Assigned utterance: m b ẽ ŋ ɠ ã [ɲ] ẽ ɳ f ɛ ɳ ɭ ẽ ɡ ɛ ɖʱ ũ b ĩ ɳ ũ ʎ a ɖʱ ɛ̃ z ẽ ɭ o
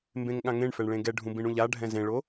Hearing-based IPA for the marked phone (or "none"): ŋ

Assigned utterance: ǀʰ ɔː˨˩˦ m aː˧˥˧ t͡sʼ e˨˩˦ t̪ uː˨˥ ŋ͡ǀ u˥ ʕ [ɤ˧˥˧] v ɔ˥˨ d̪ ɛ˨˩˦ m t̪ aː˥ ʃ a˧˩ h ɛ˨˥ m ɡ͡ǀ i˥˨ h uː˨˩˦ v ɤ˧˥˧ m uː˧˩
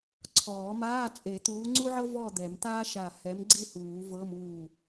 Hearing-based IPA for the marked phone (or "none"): ɤ˥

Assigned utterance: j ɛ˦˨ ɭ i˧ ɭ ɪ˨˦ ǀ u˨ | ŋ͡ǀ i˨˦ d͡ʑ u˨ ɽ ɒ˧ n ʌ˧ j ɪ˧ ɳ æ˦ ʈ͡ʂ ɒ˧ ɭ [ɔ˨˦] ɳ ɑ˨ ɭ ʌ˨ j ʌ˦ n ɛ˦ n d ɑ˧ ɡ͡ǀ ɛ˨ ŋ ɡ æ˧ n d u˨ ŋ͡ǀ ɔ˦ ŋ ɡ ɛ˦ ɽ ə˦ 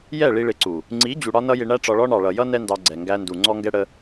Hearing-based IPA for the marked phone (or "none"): ɔ˧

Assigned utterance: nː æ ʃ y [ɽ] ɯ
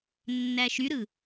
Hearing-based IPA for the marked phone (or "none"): ɾ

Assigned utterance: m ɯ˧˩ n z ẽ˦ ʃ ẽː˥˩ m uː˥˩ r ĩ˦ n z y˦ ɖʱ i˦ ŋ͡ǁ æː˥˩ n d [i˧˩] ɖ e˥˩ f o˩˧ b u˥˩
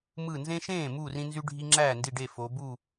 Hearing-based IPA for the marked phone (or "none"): i˧˩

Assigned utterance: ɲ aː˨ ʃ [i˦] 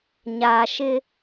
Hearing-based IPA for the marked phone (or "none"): ɪ˦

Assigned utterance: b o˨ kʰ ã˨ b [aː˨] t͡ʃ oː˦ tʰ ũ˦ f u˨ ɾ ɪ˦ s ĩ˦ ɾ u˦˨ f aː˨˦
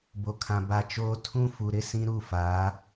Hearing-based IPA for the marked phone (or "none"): a˨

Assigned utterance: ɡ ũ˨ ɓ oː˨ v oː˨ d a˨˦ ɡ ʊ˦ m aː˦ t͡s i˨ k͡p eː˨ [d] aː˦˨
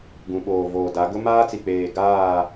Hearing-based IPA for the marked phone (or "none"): ɡ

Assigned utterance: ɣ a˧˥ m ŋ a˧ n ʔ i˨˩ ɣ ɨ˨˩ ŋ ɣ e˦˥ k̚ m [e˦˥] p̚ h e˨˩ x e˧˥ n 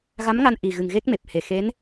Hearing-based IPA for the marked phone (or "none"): e˨˩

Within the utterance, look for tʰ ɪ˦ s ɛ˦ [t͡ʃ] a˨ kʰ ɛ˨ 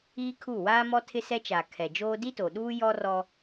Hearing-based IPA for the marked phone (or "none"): t͡ʃ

